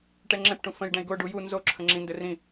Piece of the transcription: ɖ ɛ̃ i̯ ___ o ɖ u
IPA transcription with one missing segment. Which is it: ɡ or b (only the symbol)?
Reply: ɡ